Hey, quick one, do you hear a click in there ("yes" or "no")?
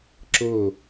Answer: yes